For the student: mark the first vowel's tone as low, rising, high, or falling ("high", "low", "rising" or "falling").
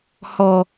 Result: low